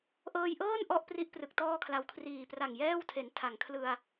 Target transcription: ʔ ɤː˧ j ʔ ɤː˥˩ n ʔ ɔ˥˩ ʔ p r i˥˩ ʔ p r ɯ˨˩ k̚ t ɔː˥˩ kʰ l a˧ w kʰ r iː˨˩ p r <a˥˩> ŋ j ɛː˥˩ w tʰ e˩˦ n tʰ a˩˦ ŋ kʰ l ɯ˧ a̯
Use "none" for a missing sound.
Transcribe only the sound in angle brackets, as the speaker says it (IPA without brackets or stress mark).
a˨˩